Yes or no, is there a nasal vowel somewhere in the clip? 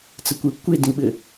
yes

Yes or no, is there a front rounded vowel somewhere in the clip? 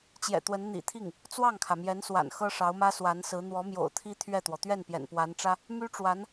yes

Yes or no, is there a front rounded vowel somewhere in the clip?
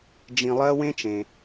no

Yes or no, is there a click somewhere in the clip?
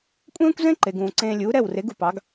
yes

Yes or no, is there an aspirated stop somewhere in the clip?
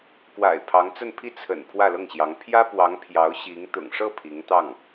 yes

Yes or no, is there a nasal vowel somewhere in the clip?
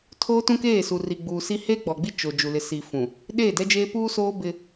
yes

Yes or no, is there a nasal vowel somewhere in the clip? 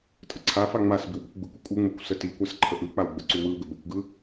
no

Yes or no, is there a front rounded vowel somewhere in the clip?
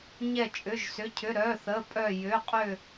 yes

